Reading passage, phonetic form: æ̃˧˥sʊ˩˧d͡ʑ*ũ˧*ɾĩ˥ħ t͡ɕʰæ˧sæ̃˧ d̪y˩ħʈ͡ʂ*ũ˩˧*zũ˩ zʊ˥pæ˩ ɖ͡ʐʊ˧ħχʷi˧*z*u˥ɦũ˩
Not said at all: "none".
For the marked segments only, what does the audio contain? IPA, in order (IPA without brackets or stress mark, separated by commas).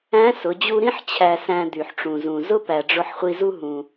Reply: u˧, ũ˩, z